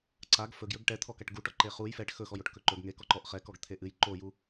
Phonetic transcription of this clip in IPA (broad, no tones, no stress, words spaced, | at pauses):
ǀaɡ fɵɡjɵɡ ʈɛt̪ʰɔkaʈ ɡuʈɔ ǃeχuj fɛʈ xɵxɔjoʈ kɵǃɵɡ ŋe kɔǃɔʔ χɛkɔɡ t̪ʰeʔɨj ǃoju